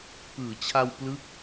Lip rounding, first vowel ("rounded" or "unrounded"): unrounded